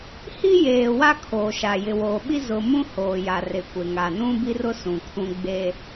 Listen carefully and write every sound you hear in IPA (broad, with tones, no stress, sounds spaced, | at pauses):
h i˦ j eː˨ w a˦ kʰ oː˨ ʃ a˨ j ɪ˨ w oː˨ ɓ i˦ z ʊ˨ m ũ˦ h oː˨ j a˨ r ɪ˨ kʷ e˨ ŋ a˨ n ũ˦ b i˦ r ʊ˦ s ũ˨ kʰ ũ˦ ɡ͡b e˦